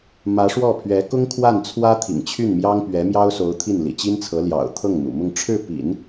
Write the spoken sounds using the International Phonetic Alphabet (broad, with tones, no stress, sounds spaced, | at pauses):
m ä˧˥ ʂ w ɔ˥˩ pʰ ɥ ɛ˧˥ k ʊ˥ ŋ kʰ w a˥˩ n t͡sʰ w ä˥ t̪ʰ ḭ˨˩ ŋ t͡ɕʰ y˥˩ n m j ɑ˥ ŋ p ɥ ɛ˧˥ m j ɑ˥ ʊ̯ s o˧˥ ʊ̯ t̪ʰ i˥˩ n l ḭ˨˩ t͡ɕ i˥ n t͡sʰ ɤ˧˥ l j ɑ̰˨˩ ʊ̯ t̪ʰ ɤ˥˩ ŋ m ṵ˨˩ m ʊ˥˧ ŋ ʈ͡ʂʰ ɻ̩˥˩ p ḭ˨˩˦ n